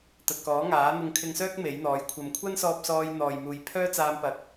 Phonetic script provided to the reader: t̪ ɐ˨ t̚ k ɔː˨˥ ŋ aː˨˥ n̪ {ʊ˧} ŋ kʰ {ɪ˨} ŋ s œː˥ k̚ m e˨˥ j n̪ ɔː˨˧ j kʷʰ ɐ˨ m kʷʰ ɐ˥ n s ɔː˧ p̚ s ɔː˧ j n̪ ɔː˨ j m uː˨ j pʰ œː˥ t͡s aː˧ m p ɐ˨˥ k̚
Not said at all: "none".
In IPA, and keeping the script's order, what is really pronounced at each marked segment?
ʊ˧, ɪ˧

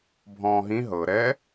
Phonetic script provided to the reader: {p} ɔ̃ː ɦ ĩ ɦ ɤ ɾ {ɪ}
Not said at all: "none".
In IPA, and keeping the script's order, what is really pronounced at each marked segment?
bʱ, ɛ

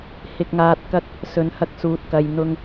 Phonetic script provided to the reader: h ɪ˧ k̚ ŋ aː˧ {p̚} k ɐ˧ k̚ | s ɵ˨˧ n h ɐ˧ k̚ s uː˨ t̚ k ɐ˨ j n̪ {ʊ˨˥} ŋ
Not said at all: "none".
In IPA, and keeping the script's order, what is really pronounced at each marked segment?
t̚, ʊ˧

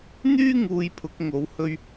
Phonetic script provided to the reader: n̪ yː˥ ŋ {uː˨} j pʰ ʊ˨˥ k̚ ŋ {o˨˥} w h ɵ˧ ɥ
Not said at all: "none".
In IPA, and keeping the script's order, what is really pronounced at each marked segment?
uː˧, o˨˥

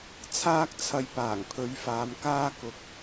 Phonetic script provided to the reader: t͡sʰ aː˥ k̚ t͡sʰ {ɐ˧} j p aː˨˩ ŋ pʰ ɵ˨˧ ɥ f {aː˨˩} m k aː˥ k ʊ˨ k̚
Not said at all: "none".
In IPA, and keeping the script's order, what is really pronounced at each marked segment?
ɐ˧, aː˨˧

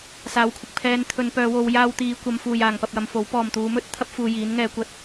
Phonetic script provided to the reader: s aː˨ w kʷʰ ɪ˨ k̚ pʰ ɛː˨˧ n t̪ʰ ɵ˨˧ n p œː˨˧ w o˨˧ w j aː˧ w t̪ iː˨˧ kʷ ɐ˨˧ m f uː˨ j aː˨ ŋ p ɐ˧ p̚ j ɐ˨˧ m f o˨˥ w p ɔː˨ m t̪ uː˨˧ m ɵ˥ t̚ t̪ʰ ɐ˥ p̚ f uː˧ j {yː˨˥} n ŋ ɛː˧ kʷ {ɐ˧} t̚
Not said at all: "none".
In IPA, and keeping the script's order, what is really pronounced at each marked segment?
iː˨˥, ɐ˥

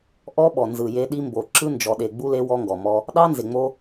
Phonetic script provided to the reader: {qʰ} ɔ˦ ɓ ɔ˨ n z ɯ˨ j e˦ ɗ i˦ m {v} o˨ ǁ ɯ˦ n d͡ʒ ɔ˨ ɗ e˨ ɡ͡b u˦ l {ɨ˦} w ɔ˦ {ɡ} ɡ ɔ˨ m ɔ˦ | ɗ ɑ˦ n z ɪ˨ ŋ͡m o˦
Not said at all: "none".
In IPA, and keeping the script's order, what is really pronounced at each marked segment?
ʔ, b, e˦, ŋ

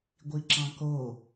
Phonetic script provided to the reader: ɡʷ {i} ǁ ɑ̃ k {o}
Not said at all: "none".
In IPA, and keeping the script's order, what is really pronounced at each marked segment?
i, o

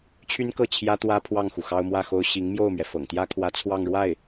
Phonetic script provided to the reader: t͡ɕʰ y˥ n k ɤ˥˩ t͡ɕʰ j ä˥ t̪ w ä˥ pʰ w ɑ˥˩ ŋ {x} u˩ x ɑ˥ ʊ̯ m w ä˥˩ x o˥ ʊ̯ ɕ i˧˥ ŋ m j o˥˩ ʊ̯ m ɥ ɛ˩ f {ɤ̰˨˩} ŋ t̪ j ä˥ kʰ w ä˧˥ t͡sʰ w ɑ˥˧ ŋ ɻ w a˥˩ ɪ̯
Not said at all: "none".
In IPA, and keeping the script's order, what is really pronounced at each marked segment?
x, ɤ̰˨˩

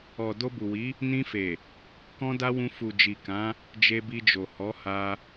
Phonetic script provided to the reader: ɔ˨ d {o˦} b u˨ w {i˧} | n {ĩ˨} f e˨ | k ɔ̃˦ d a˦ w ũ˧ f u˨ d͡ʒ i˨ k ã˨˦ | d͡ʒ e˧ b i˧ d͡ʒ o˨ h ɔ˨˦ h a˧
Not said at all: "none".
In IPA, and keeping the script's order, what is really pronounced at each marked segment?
o˧, i˨˦, ĩ˧

